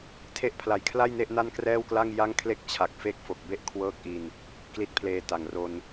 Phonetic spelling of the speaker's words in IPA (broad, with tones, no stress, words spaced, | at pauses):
tʰe˦˥ʔpʰla˩˦j kʰla˥˩j ne˥˩ʔna˥˩nkrɛː˥˩wkla˥˩ŋ ja˥˩ŋ kʰle˥˩k̚t͡ɕʰa˨˩k̚fe˥˩k̚ fo˨˩k̚be˥˩ʔ kʰwɤː˥˩k̚ʔi˧n | kli˦˥t̚pʰleː˧ta˨˩ŋ ro˧n